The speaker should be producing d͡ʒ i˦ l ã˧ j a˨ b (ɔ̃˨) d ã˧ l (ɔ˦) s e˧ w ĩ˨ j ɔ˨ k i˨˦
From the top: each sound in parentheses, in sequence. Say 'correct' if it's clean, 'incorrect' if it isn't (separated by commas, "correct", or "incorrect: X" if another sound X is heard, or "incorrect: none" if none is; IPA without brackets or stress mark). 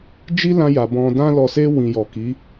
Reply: correct, incorrect: ɔ˨